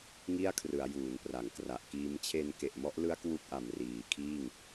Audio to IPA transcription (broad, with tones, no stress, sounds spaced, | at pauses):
ŋ i˥˩ a̯ kʰ r ɯ˩˦ a̯ j uː˩˦ n p r a˩˦ ŋ k r a˨˩ ʔ k iː˦˥ m t͡ɕʰ e˧ n k e˨˩ ʔ m ɔ˦˥ ʔ l ɯ˦˥ a̯ k w u˦˥ k̚ ʔ a˨˩ m r iː˩˦ kʰ iː˥˩ ŋ